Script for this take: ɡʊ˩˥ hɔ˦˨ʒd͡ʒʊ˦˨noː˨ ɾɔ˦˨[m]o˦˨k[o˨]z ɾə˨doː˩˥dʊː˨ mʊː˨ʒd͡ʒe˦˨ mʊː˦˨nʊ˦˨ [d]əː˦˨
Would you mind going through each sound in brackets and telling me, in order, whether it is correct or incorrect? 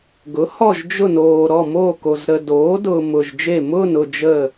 correct, correct, incorrect: d͡ʒ

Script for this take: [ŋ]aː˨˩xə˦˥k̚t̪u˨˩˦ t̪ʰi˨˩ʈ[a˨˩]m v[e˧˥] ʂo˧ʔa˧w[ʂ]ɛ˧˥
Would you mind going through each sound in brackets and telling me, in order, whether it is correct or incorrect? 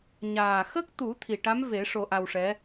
incorrect: ɲ, incorrect: a˧˥, incorrect: e˨˩˦, correct

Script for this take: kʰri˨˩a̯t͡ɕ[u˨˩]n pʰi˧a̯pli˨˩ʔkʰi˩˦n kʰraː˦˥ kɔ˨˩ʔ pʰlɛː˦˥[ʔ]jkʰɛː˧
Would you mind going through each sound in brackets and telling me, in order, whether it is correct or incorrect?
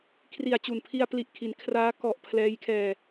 correct, incorrect: none

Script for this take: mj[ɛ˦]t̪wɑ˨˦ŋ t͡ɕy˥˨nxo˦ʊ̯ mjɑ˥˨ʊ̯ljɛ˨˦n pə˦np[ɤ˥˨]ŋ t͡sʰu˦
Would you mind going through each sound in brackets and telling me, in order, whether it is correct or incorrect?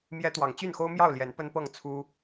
correct, correct

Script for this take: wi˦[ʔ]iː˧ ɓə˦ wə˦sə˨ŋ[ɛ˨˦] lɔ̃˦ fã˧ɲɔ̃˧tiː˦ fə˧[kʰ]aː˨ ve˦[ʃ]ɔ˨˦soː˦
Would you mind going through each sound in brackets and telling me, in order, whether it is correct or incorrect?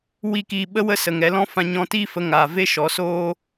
incorrect: k, correct, incorrect: ŋ, correct

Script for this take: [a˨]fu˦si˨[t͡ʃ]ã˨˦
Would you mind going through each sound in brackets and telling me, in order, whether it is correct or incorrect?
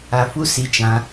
correct, correct

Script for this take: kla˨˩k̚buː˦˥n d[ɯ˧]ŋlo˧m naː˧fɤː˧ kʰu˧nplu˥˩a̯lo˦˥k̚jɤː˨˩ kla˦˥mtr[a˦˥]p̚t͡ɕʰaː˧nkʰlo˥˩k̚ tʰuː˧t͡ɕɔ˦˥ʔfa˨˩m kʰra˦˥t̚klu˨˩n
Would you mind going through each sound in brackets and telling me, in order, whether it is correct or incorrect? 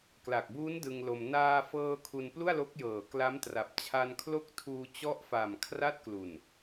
correct, incorrect: a˨˩

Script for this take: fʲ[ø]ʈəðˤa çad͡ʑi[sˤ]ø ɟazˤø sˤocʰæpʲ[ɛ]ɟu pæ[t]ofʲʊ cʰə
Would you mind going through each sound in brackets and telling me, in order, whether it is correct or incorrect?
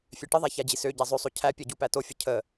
correct, incorrect: s, correct, correct

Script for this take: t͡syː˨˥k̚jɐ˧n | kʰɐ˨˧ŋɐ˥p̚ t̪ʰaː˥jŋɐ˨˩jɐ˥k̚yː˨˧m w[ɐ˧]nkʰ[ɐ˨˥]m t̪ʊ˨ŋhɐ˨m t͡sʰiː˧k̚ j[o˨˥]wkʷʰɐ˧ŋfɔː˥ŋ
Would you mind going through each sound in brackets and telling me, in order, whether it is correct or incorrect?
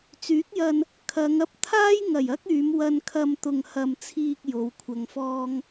correct, incorrect: ɐ˧, incorrect: o˨˧

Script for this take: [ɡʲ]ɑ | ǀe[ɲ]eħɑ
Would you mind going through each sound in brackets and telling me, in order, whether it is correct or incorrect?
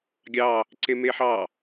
correct, incorrect: m

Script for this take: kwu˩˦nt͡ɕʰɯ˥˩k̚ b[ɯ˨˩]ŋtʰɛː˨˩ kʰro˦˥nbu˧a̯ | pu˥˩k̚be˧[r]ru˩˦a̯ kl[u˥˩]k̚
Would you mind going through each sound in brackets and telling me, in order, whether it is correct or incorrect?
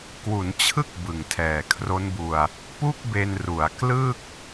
correct, incorrect: n, incorrect: ɯ˥˩

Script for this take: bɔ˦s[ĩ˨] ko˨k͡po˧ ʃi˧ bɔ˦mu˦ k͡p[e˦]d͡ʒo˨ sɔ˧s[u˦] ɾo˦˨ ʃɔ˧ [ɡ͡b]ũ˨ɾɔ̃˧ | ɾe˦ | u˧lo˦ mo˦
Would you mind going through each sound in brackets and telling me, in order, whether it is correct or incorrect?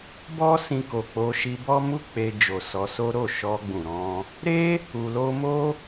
incorrect: ĩ˧, incorrect: e˧, incorrect: o˦, correct

